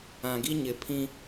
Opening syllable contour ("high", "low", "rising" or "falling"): low